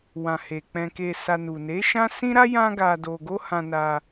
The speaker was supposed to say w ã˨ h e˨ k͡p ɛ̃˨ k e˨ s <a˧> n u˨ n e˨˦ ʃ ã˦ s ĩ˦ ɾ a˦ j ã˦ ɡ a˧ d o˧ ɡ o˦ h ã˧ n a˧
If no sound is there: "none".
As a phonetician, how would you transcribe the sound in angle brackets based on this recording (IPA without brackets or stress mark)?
a˧